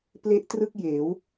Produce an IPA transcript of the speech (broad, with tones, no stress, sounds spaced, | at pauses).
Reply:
p l e˥˩ ʔ t r ɯ˥˩ k̚ j eː˩˦ w